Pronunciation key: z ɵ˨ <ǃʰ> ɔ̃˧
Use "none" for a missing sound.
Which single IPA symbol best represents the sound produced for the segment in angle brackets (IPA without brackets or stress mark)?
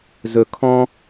kʰ